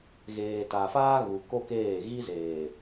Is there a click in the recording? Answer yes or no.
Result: no